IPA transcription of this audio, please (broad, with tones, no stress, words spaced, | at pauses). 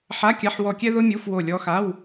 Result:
ħa˧˥˧kʲa˧˥˧ħwɔ˦˨kʲɛ˥ ðʊ˥mʲu˧˥˧fwo˦˨ lʲɔ˧˥xa˧˥˧w